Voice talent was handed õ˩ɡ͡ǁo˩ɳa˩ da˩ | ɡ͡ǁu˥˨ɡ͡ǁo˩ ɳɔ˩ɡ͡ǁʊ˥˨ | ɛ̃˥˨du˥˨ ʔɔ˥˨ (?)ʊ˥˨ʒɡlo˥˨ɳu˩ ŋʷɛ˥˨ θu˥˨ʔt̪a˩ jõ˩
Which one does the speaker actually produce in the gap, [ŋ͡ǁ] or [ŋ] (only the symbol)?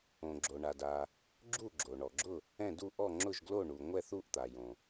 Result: ŋ͡ǁ